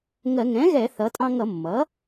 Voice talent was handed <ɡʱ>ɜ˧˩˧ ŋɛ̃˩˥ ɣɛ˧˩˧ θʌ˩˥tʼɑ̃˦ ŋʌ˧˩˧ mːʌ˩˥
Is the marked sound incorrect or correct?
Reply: incorrect